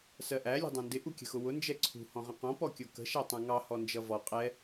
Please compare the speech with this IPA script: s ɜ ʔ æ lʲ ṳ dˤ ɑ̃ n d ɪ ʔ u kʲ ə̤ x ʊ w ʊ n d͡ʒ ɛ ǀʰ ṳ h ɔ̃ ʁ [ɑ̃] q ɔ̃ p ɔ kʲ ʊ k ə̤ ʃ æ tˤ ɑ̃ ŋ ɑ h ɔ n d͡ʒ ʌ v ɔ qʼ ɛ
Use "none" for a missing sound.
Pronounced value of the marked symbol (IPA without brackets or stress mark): ə̃